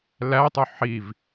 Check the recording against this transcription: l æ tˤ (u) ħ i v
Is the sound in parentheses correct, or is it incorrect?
correct